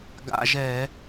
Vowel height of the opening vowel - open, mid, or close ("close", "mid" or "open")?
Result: open